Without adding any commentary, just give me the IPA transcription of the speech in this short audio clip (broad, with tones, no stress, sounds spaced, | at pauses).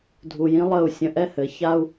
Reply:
dʱ u˨ j ĩ˦ lˠ ə˦˨ u̯ sʲ ə̃˧ ʔ ɛ˦ h ɘ˨˦ ç a˦ u̯